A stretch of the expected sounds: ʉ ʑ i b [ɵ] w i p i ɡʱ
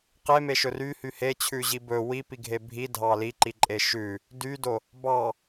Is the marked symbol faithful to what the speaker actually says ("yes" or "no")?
yes